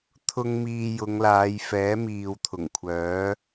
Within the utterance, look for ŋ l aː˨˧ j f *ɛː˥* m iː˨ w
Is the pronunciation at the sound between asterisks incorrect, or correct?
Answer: incorrect